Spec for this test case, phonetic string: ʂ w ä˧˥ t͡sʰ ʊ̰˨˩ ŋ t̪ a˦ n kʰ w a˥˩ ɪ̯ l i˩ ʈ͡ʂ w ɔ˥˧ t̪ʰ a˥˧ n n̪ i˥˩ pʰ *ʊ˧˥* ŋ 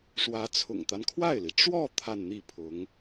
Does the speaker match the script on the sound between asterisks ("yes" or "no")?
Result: yes